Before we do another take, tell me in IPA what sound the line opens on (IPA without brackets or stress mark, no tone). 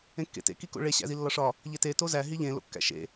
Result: ẽ